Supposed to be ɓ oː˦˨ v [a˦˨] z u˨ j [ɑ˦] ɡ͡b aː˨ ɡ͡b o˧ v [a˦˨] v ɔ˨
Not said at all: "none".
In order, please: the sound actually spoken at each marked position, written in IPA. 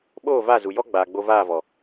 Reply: a˦˨, ɔ˦, aː˦˨

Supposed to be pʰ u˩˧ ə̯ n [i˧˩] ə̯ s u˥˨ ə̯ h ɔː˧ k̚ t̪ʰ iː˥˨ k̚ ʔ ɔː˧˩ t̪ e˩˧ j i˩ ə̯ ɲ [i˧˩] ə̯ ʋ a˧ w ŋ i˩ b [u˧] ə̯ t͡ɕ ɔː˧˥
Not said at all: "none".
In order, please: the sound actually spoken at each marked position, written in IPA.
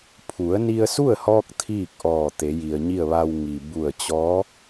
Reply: i˧, i˥˨, u˧˩

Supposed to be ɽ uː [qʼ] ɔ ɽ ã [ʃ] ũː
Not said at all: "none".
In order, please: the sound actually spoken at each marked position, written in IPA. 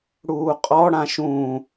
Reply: qʼ, ʃ

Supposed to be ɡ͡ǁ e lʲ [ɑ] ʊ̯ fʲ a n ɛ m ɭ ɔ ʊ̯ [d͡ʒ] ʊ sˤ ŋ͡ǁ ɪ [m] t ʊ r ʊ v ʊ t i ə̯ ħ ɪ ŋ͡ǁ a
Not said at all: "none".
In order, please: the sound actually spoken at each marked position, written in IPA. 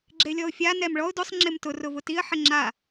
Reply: ɔ, d, m

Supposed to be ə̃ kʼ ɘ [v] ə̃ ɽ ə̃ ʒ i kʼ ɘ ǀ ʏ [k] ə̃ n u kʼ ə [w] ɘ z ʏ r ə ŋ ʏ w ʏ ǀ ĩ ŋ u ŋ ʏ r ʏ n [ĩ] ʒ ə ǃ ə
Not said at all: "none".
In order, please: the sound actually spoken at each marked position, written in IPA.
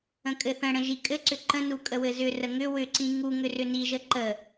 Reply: θ, ǃ, w, i

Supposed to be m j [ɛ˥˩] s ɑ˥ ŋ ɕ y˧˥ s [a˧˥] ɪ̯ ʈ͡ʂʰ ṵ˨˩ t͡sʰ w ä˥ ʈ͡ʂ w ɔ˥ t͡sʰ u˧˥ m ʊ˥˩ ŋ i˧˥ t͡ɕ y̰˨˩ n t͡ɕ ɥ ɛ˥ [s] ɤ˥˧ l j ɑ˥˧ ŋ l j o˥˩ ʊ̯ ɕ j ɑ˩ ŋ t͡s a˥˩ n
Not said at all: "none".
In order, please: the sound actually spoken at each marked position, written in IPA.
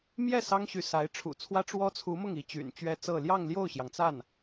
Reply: ɛ˥˩, a˧˥, t͡s

